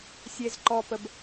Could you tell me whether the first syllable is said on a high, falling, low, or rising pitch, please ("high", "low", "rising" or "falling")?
low